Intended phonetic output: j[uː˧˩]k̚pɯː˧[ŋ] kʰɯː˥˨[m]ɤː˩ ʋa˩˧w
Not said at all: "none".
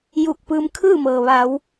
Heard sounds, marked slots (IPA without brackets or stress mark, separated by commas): uː˧˩, m, m